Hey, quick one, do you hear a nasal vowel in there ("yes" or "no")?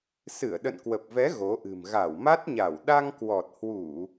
no